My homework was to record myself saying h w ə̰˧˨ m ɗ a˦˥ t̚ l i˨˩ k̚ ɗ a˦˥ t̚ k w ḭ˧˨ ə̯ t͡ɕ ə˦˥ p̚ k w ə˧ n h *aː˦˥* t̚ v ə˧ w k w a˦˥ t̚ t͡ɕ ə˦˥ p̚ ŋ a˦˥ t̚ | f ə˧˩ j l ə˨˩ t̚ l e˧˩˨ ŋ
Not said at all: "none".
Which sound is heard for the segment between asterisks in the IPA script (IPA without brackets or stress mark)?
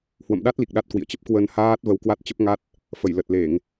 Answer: aː˦˥